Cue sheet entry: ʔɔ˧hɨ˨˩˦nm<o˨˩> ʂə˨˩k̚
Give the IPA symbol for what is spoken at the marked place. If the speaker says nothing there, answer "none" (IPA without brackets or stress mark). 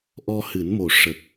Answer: o˨˩